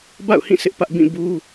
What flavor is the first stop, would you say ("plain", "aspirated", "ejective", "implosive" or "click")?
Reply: plain